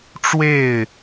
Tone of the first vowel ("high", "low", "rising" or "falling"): falling